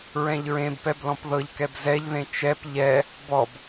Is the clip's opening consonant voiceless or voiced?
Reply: voiced